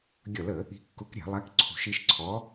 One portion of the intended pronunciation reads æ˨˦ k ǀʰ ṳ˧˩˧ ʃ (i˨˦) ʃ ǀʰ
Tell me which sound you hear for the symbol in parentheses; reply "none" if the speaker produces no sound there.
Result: i˨˦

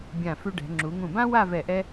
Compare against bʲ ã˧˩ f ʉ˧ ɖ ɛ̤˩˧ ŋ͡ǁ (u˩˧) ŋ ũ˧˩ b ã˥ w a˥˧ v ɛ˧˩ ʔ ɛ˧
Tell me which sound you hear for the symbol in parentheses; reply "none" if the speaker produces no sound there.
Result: u˩˧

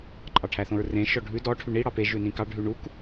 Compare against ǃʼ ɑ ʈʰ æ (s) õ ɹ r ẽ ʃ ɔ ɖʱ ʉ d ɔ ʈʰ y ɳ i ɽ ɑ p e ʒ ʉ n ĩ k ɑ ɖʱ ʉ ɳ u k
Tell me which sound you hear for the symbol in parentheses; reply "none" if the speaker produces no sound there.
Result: θ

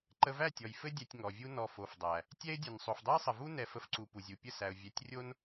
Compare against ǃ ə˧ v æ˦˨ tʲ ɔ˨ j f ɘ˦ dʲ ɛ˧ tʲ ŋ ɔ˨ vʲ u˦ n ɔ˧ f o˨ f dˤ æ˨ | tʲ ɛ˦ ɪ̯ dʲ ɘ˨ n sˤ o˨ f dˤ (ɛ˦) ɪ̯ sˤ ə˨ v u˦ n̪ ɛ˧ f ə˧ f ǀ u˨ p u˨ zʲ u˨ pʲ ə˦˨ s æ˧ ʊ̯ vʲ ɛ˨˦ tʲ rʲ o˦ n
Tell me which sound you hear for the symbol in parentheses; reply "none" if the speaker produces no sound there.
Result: ɛ˦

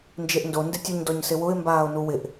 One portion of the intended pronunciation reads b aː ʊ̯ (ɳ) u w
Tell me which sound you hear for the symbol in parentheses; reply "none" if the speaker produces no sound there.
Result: n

